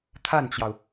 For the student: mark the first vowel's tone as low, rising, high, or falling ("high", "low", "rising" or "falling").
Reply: falling